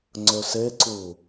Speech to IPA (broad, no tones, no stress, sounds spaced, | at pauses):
ŋ͡ǀ ɵ s e ǀ u